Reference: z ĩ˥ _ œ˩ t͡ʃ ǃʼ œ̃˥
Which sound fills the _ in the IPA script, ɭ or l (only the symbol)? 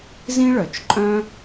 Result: ɭ